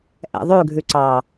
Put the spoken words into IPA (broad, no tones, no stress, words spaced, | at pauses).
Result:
ʔɛ̰ðˤʉɡʱʉ ǀɑ